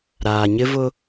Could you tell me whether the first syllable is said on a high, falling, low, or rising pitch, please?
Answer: low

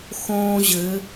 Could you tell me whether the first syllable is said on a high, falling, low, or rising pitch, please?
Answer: high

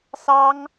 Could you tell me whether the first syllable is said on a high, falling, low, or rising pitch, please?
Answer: high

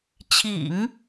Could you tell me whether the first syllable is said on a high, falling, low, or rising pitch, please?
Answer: low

